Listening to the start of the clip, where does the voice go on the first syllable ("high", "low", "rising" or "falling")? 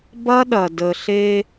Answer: high